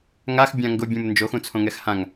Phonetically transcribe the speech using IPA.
ŋ a x bʲ ã ŋ ɡ ʊ bʲ ũ m n d͡ʒ o x ũ t͡sʰ õ ŋ ɛ x h ã ŋ

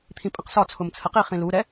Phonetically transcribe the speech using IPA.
t̪ʰ ĩ pʼ ə̃ q s ɒ t͡sʰ ʊ m t͡sʰ ə q i χ ĩ l u ɾ ɛ

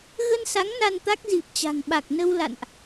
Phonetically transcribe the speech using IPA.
ɣ ə˧ n s a˨˦ ŋ n a˧ n t̪ a˦˥ k̚ z i˨˩ p̚ t͡ɕ a̤˨˩ ŋ ɓ a˨˩ k̚ n ə˧ w l a̰˧˨ n ʔ

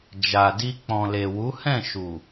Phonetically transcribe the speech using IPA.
d͡ʒ a˨ d i˧ k͡p ɔ̃˨ l e˨ w u˨˦ h ɛ̃˦˨ ʃ u˨

